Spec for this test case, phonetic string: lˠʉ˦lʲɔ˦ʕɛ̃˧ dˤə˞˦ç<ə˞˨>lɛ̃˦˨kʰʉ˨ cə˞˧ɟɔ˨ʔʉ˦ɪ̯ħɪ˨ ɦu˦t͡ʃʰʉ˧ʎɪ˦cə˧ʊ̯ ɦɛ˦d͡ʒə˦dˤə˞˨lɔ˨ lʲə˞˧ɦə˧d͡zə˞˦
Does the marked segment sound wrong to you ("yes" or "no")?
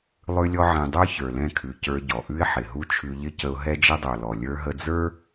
no